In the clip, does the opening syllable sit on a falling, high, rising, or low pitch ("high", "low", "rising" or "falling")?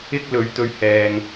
high